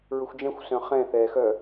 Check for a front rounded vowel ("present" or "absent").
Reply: present